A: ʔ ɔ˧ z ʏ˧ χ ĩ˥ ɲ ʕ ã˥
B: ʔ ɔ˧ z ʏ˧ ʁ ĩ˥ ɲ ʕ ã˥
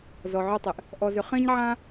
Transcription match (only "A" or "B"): A